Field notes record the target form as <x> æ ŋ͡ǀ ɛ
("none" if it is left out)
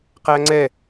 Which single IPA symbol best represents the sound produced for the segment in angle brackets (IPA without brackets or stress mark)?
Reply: q